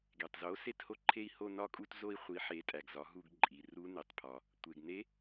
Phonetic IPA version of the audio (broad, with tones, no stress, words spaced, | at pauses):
ɡe˩tˤzo˩˥ se˦˨tho˦˨ǃʰe˦˨i̯ho˦˨ nɒ˦˨kʼu˦˨t zo˦˨i̯χʷi˩˥ ħe˩˧tʼæ˩ɡ zɒ˩˥ɦu˦˨ɡ ǃʼi˩ ru˧˥ ne˩tˤpʰɒ˩ | tʷe˩ɡne˧˥